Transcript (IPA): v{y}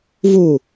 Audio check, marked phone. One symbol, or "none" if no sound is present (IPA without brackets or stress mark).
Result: u